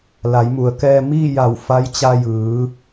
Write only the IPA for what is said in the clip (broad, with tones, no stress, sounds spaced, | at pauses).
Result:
l a˩˧ j m u˩ ə̯ k ɛː˧ m iː˥˨ j a˧˩ w f a˧˥ j t͡ɕ a˧ j ɯː˩˧